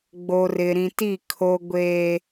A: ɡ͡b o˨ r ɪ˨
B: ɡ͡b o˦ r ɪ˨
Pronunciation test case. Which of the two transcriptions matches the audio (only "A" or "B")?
A